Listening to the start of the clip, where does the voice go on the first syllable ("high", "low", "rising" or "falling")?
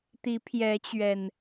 rising